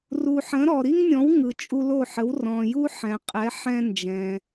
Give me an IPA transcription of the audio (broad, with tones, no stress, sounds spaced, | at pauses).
r u˩ ħ ə̃˩˥ ɾ ɔ˩ ɾ i˥ ŋ nʲ ɔ̃˩˥ w ŋ ɯ˩ t͡ʃʼ u˧ l o˥˩ ħ ə˩˥ w r ɔ̃˩ j u˥ ħ ɛ̃˩ qʼ ɛ˩˥ ħ ɛ̃˥ n d͡ʒ ɛ̃˩